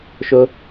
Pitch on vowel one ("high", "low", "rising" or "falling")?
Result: high